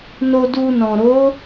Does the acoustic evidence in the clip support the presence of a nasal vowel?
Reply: yes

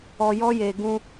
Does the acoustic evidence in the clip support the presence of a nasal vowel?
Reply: yes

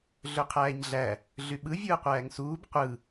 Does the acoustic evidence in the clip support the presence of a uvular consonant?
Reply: yes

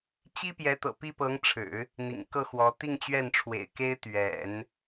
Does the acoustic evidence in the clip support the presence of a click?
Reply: no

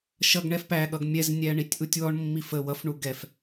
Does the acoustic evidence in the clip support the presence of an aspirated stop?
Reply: no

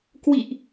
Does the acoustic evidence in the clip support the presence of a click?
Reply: no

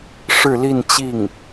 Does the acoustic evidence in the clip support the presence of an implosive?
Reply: no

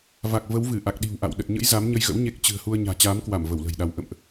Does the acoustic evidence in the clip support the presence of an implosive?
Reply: yes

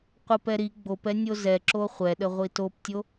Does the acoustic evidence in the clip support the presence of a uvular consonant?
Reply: yes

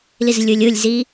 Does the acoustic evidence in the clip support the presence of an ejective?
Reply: no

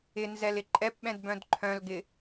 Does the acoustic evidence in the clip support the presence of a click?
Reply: yes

